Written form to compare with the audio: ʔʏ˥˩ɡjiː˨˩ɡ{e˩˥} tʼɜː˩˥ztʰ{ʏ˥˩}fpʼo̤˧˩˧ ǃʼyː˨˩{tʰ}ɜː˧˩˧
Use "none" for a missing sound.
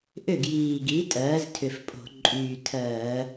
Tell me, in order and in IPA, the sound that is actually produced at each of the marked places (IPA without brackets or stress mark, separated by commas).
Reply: i˩˥, ʏ˨˩, tʰ